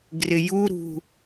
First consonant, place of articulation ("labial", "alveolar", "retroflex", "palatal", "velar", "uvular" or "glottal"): velar